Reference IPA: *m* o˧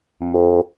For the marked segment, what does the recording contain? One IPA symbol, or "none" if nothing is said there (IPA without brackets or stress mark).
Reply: m